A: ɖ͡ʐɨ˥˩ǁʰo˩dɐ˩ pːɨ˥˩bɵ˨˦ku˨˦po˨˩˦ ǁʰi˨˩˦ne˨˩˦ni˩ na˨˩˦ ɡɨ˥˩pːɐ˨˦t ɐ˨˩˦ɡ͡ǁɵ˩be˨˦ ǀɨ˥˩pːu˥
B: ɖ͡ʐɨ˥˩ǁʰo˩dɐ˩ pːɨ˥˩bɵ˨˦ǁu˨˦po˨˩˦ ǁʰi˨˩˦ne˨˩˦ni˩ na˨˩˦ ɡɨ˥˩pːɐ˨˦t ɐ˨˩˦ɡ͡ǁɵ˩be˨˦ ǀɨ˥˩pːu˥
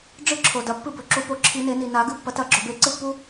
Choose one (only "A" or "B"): B